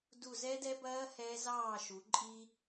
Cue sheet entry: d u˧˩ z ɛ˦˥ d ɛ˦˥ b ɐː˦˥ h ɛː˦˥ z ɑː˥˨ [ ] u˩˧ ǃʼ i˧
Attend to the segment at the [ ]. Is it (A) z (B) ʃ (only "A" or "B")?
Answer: B